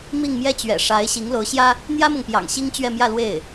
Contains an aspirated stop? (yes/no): no